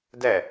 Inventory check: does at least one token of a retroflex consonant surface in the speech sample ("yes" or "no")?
no